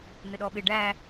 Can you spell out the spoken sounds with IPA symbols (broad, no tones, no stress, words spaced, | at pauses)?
n̪ɪɗɔɓɪ ɖæ